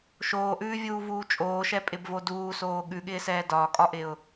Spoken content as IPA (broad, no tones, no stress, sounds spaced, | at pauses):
ʃ oː ʔ ʉː vʲ uː v uː t͡ʃʼ oː ʃ ɛ pʼ ɪ b v o d uː s oː ɠ ʉ ɠ ɪː s ɛː d ɒː kʼ ɒ ʔ ɪ ʊ̯